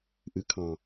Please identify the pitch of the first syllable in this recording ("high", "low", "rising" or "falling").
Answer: rising